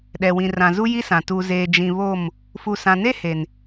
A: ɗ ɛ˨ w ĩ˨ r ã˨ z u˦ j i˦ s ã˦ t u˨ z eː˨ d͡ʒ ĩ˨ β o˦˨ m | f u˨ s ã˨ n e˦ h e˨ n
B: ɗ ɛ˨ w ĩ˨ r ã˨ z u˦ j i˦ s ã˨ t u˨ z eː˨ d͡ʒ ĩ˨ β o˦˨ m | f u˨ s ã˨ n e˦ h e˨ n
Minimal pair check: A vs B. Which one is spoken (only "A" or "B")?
B